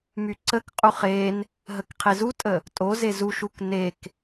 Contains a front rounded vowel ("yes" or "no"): yes